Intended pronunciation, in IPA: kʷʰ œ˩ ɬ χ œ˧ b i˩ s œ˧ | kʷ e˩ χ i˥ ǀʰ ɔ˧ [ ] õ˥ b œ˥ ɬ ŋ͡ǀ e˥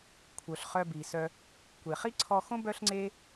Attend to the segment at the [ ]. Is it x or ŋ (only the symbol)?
x